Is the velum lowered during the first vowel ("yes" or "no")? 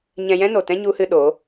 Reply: yes